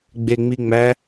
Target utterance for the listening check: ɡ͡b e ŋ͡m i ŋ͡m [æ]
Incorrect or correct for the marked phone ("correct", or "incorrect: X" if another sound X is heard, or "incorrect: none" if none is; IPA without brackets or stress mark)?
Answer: correct